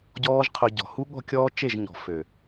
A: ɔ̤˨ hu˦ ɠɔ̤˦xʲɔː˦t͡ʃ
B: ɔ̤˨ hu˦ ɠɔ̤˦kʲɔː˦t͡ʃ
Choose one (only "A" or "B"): B